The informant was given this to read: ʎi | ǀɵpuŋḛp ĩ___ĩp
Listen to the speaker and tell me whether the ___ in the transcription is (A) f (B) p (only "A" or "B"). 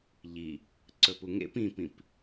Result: B